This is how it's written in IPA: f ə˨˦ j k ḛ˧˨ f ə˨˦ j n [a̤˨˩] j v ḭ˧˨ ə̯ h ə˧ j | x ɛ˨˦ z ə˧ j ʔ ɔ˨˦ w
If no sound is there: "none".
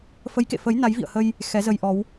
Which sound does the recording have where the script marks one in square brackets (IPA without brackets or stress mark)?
a˨˦